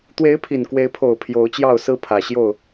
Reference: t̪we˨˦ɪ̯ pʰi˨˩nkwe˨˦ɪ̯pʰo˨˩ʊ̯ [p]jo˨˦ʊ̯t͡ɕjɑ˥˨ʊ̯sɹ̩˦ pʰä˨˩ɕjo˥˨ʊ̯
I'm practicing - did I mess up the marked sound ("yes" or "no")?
yes